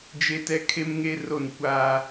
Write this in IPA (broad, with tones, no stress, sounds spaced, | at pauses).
d͡ʒ e˦ t ɛ˦ kʰ e˦ m ŋ e˦ r o˦˨ n kʷ aː˦